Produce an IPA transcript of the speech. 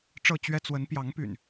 ʈ͡ʂ ɤ˥˨ t͡ɕ ɥ ɛ˦ t͡s w ə˨˦ n p j ɑ˨˦ ŋ p y̰˨˩ n

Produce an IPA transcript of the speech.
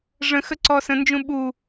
ʐ ə̃ x ə ǀ ɔ s ə̃ n d͡ʒ ũ ɓ u

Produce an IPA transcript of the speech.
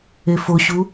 e f o ɕ u

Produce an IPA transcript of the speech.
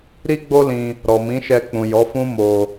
ɾ i˦ ɡ͡b o˦ l ĩ˧ | ɾ ɔ˨ m ĩ˨˦ ʃ ɛ˧ k͡p ũ˨ j ɔ˨˦ f ũ˦ m o˧

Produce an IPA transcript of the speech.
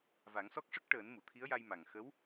v a˨˩˦ ŋ s ɔ˦˥ k̚ ʂ ə˦˥ k̚ ʈ əː˨˩˦ n m u˨˩˨ t̪ʰ i˧˥ ə̯ j a˧ j m a˨˩ ŋ x ə˧˥ w

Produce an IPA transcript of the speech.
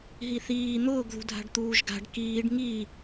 ɦ i θ iː n̪ ʊː ɡ ð ṳ dʱ a̤ ɖ t̪ uː ʒ ɡ a̤ ɖ k iː ɖ ŋ i

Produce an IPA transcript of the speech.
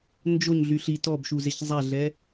n d͡ʒ o ɲ ɮ y ɬ i t ɔ b ʃ u z e ç zˤ a ɮ ɛ

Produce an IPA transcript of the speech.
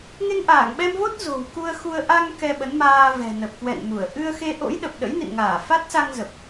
ŋ e˧ ŋ ʔ aː˧˩ ŋ ɓ ɛ˧ m v o˦˥ t̚ z o̤˨˩ w k u˧ ə̯ x u˧ ə̯ ʔ a˧ ŋ k ɛ˧ ɓ ə˨˦ n m aː˧ v ɛ̤˨˩ n ə˨˩ p̚ k w ɛ̰˧˨ n m u˧˩ ə̯ ʔ ɨ˧ ə̯ x e˧ ʔ o̰˧˥ j ɗ ə˨˩ p̚ ɗ ə̰˧˥ j n ḭ˧˨ n ŋ aː˧˩ f a˦˥ t̚ s a˧ ŋ z ə˨˩ p̚

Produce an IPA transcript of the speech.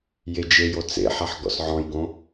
j e d͡ʒ e j o t͡s ḛ ħ a ħ ɡ ɔ̰ s ʕ ɔ̃ j ɡ õ

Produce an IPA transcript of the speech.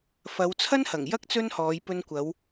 f ɐ˨˧ w t͡sʰ ɐ˥ n h ɐ˨˩ ŋ j ɐ˥ k̚ t͡s ɵ˥ n h ɔː˨˧ j p ɵ˧ n kʷ ɐ˨˧ w

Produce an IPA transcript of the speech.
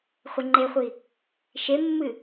χʷ ɘ ŋ͡ǃ e χʷ i | ʃ e mː ɨ

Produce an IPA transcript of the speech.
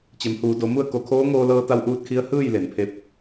t͡ɕ e˩˧ m h uː˩˧ d o˩˧ m u˥˨ ə̯ k o˧˩ kʰ oː˧˥ ŋ oː˧ l ɤː˧ t̪ a˧˥ w ʔ uː˧ t̚ kʰ i˧˥ ə̯ h ɯː˥˨ j l e˩ n pʰ e˧ p̚

